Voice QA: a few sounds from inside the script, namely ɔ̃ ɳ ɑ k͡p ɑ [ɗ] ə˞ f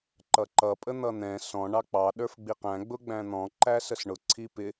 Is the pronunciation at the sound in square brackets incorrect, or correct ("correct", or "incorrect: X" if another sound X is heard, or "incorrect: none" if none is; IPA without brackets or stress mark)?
correct